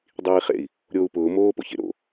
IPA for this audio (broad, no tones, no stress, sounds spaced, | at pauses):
dˤ iː χ ḛ i̯ | ɾʲ oː u̯ p ʊː m oː p o̰ ç ḛ ɾ o̰